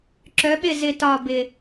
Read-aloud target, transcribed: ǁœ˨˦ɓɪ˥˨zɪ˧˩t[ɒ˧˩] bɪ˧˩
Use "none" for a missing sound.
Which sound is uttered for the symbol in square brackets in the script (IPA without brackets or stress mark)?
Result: ɒ˧˩